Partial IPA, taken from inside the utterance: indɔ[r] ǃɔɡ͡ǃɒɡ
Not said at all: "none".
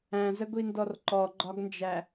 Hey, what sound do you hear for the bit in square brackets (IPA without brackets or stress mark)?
r